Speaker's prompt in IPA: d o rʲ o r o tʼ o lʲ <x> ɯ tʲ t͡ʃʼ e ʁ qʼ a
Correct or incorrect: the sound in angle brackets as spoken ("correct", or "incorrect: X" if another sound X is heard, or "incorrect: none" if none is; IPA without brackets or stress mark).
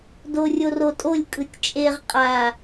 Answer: incorrect: kʼ